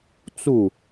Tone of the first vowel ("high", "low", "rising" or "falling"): falling